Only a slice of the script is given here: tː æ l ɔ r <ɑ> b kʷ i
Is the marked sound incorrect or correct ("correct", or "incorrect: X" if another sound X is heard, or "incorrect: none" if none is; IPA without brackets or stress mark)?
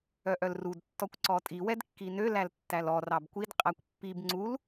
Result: correct